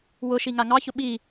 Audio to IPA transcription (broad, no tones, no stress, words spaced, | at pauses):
wʊʃi ŋaŋɑçʊ ɓi